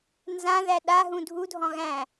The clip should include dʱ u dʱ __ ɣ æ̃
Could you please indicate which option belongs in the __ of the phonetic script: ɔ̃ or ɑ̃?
ɔ̃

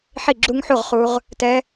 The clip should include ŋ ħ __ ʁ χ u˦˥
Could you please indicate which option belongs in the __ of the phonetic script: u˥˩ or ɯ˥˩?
u˥˩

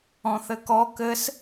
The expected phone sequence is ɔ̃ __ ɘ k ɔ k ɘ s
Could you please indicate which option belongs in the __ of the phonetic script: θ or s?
θ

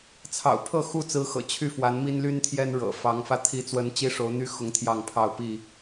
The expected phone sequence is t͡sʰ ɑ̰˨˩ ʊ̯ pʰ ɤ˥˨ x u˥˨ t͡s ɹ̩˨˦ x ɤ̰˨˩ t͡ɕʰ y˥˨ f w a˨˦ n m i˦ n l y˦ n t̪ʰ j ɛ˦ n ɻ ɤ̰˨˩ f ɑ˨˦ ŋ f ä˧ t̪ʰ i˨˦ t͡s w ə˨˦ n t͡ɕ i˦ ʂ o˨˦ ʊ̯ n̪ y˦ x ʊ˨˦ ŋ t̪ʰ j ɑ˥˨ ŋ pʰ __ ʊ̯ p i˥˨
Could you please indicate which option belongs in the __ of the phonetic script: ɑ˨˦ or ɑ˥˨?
ɑ˥˨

